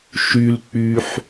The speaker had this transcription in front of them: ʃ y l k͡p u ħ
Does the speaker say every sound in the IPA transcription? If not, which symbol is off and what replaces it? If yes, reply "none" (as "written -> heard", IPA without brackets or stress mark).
u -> y